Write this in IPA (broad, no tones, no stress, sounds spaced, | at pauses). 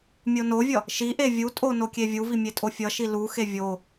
mʲ o n o vʲ ʌ | ʃ i ʔ e vʲ u tʼ o n o kʲ e vʲ u v i mʲ e tʼ o fʲ ʌ ʃ i l u x e vʲ o